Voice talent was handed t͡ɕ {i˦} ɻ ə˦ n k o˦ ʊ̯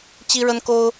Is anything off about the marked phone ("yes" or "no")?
no